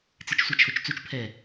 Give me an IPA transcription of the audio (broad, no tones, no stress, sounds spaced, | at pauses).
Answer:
t͡s i t͡ʃ sʷ a t͡ʃʰ o t͡ʃ t͡s u t͡ʃ pʰ ɛ